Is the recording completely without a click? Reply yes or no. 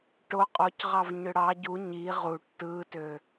yes